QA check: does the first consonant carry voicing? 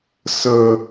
no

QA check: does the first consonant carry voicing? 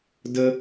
yes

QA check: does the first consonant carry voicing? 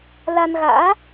yes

